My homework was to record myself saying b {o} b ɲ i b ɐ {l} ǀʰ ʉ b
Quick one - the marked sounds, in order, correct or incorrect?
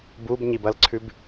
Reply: incorrect: u, correct

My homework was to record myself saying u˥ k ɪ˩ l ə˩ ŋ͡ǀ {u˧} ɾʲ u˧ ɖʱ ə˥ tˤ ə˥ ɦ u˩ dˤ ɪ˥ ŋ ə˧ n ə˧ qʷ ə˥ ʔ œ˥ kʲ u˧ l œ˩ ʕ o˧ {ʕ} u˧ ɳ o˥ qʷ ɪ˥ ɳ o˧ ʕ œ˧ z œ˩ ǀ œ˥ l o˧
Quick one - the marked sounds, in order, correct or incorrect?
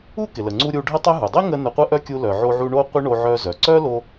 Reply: correct, correct

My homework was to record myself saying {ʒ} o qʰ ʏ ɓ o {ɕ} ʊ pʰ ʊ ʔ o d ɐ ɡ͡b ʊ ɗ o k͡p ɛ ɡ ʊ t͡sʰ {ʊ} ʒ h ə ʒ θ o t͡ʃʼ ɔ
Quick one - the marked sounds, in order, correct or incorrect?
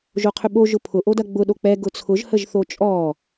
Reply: correct, incorrect: ʒ, correct

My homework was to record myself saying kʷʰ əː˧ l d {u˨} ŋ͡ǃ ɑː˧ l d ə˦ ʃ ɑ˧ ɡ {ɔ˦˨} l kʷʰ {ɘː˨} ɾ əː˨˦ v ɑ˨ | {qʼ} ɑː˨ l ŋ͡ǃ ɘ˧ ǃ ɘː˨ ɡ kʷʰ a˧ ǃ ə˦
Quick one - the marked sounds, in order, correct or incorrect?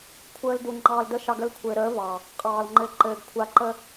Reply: correct, incorrect: ə˦˨, correct, correct

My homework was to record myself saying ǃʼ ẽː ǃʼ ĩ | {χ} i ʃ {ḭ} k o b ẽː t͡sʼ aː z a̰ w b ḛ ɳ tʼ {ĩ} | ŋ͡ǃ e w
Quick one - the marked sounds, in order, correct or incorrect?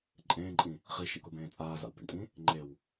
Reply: correct, correct, correct

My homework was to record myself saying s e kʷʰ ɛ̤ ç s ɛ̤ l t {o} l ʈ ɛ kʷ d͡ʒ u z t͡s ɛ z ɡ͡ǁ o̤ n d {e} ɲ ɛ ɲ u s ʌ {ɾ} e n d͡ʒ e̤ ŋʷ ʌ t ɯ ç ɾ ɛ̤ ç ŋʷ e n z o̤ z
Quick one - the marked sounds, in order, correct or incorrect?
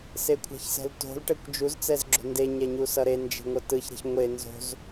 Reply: incorrect: o̤, correct, correct

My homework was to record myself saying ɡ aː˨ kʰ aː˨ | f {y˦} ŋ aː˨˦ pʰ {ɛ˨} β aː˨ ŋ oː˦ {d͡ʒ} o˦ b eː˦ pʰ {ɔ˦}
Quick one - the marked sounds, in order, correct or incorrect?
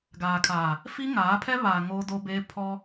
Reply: incorrect: i˦, incorrect: ɛ˦, incorrect: d, correct

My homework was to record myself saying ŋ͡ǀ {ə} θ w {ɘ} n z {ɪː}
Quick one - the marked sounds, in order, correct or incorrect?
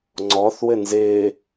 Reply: incorrect: ɔ, correct, correct

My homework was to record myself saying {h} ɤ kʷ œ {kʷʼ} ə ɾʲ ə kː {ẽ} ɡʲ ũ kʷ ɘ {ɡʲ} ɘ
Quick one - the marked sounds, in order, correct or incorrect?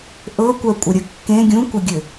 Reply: incorrect: ʔ, correct, correct, correct

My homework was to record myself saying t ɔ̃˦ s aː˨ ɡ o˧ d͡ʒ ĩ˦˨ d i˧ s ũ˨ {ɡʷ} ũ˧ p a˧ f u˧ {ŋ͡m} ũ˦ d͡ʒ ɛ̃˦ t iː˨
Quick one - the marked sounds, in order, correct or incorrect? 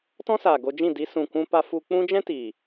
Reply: incorrect: kʷ, incorrect: k͡p

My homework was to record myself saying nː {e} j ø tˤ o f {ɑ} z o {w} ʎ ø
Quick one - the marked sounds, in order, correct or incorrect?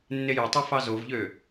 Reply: correct, correct, incorrect: v

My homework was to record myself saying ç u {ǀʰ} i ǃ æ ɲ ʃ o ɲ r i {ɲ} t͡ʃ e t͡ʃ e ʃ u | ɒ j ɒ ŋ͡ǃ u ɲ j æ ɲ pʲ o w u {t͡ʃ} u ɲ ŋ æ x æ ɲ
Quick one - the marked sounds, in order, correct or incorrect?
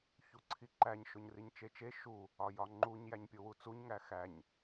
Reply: correct, correct, incorrect: t͡s

